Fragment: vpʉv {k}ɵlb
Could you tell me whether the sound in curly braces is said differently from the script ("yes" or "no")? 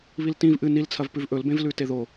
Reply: yes